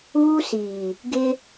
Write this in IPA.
uː˦ s iː˨ | ɡ ɪ˦

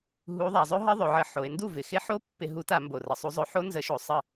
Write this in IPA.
ɦ u˨˥ ðˤ a˩˧ zˤ ɵ˦˥ ɦ ə˦˥ ðˤ ɵ˩˧ ʕ ə˧˩˧ ħ o˩˧ e̯ n d u˥˩ v ɪ˨˩ x ɪ˦˥ ħ o˦˥ pː ɪ˧˩˧ ɦ u˨˥ t a˧˩˧ m b o˨˩ r ə˩˧ sˤ u˨˥ zˤ ɵ˨˥ ħ o˦˥ n z ə˨˥ ʃ o˧˩˧ sˤ ə˥˩

